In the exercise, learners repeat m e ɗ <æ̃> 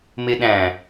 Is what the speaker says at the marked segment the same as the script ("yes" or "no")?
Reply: yes